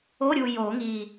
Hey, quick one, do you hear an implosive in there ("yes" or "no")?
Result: no